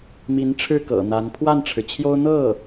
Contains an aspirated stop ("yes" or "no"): yes